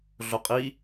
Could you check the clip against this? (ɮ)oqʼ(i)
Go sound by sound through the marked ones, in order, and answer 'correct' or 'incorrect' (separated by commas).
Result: correct, correct